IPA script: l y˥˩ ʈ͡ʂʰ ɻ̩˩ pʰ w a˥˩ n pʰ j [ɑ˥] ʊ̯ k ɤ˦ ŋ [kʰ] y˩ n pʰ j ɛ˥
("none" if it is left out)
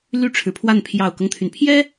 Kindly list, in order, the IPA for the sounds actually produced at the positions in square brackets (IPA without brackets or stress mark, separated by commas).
ɑ˨˩, t̪ʰ